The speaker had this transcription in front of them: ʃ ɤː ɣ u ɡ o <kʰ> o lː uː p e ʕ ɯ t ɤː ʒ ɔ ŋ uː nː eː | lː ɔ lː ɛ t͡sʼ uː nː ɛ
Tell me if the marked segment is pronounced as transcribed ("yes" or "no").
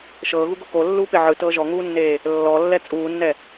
no